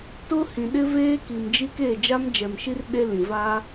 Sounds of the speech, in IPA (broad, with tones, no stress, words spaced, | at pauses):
tʊ˦hĩ˨ɗɪ˦ veː˦ki˨md͡ʒi˦ke˦˨ d͡ʒa˦md͡ʒɛ˨mʃi˦r ɗe˦ lĩ˨va˦